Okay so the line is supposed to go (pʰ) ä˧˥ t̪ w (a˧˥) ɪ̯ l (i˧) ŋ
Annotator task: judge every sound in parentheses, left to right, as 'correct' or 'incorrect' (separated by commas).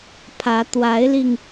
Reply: correct, correct, correct